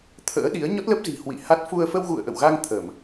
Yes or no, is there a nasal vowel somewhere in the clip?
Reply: no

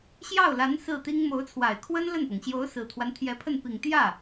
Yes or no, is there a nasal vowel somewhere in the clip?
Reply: no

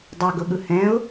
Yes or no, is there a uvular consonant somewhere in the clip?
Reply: no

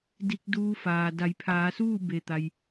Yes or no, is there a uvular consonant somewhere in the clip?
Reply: no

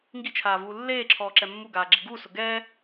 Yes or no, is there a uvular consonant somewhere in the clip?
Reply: no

